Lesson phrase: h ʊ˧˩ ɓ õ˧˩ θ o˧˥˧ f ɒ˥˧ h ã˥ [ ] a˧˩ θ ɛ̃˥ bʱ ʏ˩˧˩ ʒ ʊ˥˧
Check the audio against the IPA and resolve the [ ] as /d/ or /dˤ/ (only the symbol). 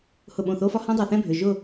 dˤ